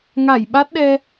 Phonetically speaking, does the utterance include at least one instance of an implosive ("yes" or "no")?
yes